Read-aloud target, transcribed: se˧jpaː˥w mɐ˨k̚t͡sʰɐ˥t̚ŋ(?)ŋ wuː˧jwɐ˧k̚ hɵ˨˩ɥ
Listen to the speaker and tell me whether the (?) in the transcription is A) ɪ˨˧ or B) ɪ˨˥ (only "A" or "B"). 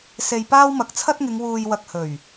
A